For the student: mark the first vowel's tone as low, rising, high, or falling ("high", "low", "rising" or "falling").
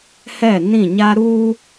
falling